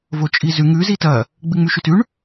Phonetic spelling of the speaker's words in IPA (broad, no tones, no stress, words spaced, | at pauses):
vot͡ʃʼizʉ ŋʉ zitɐ | ɡ͡bɨŋ͡mʉʃʉtʉɳ